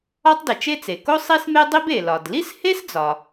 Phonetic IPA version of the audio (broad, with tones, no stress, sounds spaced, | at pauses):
ɒ˥ tˤ d i˩ t͡ʃ e˥ t͡s e˩ k o˥ sˤ i˥ s m e˥ dˤ i˥ b e˩ l ɒ˩ d l i˥ s h e˥ s d͡z ɒ˩